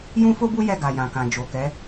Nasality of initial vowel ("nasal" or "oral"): nasal